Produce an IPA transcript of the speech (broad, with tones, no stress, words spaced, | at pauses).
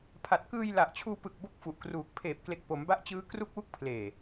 pʰa˨˩t̚kɯː˧j la˨˩ʔt͡ɕʰuː˧pɯ˨˩k̚ bo˥˩k̚fu˨˩ʔkruː˨˩k̚ pʰeː˨˩p̚kle˨˩k̚ po˩˦mba˦˥ʔt͡ɕɯː˦˥ kru˦˥k̚wu˦˥k̚pʰleː˨˩